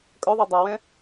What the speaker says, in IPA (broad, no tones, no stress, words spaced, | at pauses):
kʼœðˤɛ dˤawɛ̃